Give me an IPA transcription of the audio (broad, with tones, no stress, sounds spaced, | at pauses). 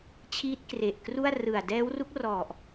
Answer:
t͡ɕʰ iː˦˥ t̚ k r e˨˩ ʔ k r u˥˩ a̯ r ɯ˨˩ a̯ d ɛː˦˥ w r u˦˥ k̚ r ɔ˨˩ ʔ